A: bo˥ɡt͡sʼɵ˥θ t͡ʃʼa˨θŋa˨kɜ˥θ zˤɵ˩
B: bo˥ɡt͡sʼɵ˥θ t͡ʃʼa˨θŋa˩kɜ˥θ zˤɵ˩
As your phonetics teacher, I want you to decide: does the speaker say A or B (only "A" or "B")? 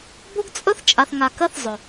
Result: A